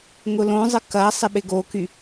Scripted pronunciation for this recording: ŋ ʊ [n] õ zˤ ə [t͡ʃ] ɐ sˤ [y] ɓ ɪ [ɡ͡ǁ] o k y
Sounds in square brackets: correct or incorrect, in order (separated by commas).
incorrect, incorrect, incorrect, incorrect